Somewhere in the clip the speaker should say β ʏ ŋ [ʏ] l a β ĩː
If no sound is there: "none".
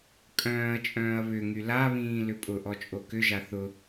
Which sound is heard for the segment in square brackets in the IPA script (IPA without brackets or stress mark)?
y